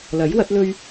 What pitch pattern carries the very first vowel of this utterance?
rising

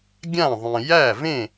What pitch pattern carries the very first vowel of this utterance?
falling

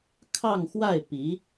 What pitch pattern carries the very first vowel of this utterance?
falling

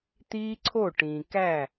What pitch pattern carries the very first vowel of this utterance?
high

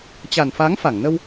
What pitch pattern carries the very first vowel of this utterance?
low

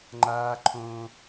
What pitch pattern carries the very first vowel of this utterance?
high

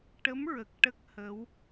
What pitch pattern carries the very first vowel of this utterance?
rising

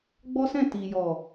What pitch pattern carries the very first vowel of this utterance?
high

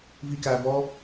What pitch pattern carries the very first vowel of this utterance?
high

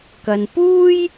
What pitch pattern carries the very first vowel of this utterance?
low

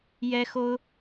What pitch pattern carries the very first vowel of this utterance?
high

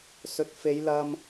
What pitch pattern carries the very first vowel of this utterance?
low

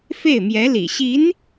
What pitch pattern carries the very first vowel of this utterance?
falling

